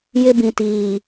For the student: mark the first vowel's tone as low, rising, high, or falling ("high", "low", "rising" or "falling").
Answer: high